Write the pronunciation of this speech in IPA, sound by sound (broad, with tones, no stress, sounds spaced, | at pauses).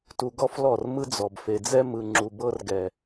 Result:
t u˨ ɡ ɔ˦ f l ɔ˦˨ r m ɯ˦ d͡z ɔ˨ b f e˨ d͡z ɛ˦ m ɯ˨ ŋ͡ǁ u˨ b ɤ˦ r ɡ ɛ˨